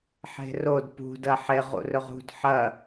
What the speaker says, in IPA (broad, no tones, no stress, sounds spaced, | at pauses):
ħ e̤ r o d p ṳ d ɐ ħ e ʁ ṵ r ɵ ʁ ṳ d ħ ɐ